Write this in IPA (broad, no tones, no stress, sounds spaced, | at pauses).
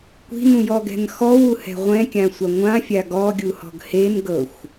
kʷ i̤ n ũ j ɔ ɡ ɛ̤ n x ɔ w u h ɛ̤ ʁʷ ɛ̃ kʲ ã sʷ a ŋʷ ã fʲ a ɡ ɔ ɡʲ u h ɔ̤ ɡ h e n ɡ ɤ xʷ